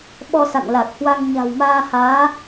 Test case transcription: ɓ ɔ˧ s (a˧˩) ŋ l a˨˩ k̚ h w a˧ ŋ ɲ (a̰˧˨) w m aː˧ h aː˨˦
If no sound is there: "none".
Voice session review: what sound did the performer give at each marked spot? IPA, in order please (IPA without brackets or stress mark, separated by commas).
a̰˧˨, a̤˨˩